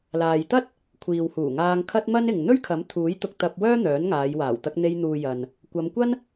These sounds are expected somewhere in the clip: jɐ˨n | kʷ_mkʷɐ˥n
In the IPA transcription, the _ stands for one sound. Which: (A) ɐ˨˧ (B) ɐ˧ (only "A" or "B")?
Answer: A